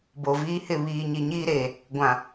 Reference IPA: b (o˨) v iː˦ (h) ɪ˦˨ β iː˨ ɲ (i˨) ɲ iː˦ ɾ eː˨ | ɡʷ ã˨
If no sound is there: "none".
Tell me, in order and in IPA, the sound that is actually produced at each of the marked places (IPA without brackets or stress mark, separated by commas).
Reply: o˨, h, i˨